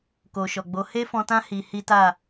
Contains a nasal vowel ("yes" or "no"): yes